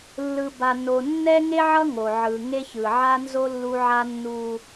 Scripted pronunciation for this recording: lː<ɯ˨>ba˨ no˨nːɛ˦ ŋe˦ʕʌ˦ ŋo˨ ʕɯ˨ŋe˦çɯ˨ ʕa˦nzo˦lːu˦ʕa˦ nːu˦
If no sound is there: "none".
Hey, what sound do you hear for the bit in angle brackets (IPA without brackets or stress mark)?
ɯ˨